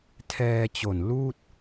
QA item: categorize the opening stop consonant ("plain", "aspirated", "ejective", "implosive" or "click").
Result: aspirated